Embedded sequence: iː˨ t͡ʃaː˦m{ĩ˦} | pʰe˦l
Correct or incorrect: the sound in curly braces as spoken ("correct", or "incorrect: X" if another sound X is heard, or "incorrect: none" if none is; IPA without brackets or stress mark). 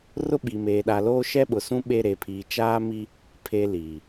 incorrect: i˦